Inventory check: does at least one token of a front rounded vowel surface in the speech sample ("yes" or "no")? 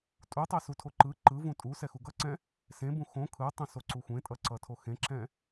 no